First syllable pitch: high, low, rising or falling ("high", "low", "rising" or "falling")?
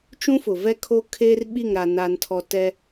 high